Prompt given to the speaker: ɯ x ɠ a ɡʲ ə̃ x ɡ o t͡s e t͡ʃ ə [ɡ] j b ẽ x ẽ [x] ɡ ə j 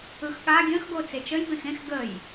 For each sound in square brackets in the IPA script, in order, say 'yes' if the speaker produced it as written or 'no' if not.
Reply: no, yes

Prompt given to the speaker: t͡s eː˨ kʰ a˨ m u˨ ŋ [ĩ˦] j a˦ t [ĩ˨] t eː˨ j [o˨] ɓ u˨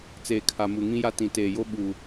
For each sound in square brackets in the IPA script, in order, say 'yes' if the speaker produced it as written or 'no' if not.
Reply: yes, yes, no

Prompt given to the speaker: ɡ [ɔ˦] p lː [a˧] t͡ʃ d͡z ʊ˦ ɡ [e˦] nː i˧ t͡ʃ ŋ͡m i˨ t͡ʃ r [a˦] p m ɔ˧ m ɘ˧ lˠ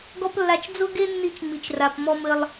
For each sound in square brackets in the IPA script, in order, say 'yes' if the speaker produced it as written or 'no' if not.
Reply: yes, yes, yes, no

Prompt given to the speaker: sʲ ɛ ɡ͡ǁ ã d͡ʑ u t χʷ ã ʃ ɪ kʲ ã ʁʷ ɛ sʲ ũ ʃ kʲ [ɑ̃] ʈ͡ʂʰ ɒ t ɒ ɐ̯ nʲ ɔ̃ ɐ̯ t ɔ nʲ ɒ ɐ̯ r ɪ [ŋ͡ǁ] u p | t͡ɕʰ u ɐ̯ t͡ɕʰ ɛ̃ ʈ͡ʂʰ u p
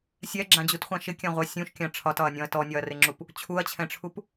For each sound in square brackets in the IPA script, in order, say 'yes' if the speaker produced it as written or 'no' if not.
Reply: no, yes

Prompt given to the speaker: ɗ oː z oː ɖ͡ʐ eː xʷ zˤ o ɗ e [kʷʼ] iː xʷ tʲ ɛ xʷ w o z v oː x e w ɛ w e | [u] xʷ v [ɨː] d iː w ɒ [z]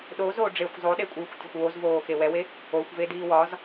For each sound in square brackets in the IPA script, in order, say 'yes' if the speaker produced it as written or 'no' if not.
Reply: yes, no, no, yes

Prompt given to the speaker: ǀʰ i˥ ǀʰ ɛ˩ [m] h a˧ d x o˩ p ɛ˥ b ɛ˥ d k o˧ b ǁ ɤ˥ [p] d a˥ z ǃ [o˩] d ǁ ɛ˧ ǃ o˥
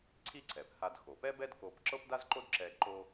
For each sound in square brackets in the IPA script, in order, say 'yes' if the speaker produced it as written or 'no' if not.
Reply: no, yes, no

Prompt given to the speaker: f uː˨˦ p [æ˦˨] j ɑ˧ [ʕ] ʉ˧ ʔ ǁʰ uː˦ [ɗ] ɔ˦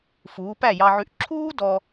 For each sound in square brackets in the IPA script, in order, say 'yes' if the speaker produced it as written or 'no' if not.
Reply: yes, yes, no

